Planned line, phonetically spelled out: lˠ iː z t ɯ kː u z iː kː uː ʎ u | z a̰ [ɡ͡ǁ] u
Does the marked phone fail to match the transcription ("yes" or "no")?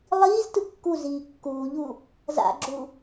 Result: no